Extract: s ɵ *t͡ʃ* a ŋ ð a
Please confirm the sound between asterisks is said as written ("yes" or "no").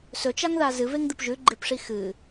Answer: yes